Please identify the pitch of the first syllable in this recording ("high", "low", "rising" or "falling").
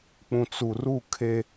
low